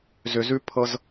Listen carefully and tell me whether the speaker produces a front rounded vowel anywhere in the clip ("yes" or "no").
yes